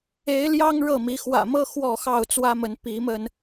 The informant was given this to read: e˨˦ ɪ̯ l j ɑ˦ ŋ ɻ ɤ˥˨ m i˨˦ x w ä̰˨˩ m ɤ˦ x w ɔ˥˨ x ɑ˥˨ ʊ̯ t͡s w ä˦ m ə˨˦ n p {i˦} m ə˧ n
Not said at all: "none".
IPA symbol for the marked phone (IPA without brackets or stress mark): i˨˦